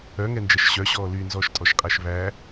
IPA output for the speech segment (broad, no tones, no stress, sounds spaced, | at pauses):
œ ŋ ɛ n d͡ʒ ɛ ʃ ɕ œ ɕ ɔː l y n z ɔː ʃ tʼ ɔ ʃ qʼ æ ʃ β æ